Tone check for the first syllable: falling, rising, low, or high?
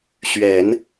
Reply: low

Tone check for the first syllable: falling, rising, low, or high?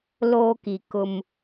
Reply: high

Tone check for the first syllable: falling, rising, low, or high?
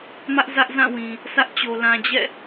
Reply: high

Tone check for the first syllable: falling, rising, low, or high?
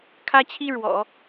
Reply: high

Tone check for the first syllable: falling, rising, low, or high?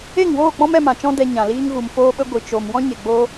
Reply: falling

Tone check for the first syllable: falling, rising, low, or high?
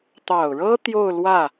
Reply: low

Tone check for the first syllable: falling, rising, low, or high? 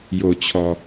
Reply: low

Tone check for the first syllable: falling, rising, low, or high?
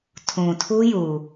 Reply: low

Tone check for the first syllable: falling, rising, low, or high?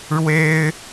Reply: high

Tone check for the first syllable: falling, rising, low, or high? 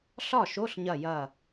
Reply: falling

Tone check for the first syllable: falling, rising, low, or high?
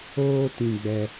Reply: high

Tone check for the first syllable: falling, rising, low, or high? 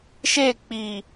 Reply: falling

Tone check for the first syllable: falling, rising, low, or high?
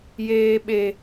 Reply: low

